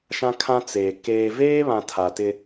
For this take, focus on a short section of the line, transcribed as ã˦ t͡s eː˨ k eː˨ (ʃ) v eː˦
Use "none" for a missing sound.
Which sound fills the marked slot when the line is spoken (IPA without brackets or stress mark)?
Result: none